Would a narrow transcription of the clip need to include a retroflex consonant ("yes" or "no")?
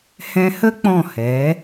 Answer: no